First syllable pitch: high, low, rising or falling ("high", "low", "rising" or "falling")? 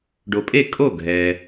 low